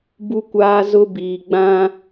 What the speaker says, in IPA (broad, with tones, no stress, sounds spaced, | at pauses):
b u˦ kʷ aː˦ z ʊ˦ b iː˨ ɡ͡b ã˦